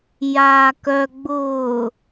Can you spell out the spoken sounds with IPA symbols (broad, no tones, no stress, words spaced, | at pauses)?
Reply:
jaːkœ ɡ͡bʊː